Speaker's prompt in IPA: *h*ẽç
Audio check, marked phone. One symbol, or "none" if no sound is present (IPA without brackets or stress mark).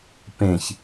p